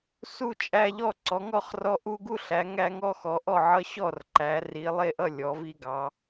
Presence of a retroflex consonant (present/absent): absent